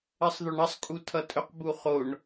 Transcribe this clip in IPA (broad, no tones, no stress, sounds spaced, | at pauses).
ɜ sˤ ð o ɳ ʌ sˤ kʼ u tʰ ʌ tʼ ɵ q b u χ o ɳ